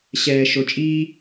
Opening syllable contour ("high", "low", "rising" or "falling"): low